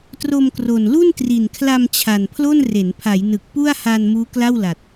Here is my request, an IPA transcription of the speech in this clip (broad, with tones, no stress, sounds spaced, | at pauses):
t r o˧ m k r o˨˩ n l u˥˩ n t r i˨˩ n kʰ l a˧ m t͡ɕʰ a˨˩ n pʰ l o˥˩ n r e˩˦ n pʰ a˩˦ j n ɯ˨˩ k̚ p u˥˩ a̯ h a˧ n m uː˦˥ k l a˥˩ w l a˨˩ t̚